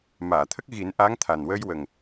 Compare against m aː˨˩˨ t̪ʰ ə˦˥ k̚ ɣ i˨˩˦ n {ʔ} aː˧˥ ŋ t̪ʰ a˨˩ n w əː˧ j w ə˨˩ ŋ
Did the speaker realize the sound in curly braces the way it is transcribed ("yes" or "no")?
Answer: yes